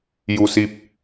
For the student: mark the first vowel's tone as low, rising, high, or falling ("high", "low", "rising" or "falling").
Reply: low